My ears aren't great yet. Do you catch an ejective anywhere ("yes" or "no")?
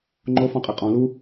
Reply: yes